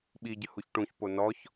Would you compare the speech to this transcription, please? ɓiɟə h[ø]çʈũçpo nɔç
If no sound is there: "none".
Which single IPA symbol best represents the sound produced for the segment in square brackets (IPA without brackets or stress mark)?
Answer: u